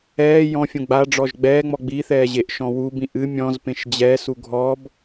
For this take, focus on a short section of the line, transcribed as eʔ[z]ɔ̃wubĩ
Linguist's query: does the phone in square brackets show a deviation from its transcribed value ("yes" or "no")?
yes